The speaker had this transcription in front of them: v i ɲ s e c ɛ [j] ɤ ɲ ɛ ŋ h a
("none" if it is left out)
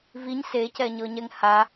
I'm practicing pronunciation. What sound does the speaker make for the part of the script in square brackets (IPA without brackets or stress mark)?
ɲ